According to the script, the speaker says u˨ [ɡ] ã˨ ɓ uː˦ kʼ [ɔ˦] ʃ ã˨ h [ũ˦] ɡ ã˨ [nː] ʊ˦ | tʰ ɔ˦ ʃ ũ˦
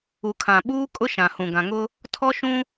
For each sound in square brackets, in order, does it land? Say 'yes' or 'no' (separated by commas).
no, no, no, no